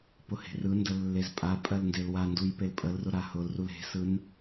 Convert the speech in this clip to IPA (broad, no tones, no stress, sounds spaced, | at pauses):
p ʊ h e̤ r ɯ n d ə lː e z pʼ a pʼ ɜ l n d e l w a n d u j p e l pʼ ə l r ʊ ɾ a h ʊ l r u l e̤ s ɯ n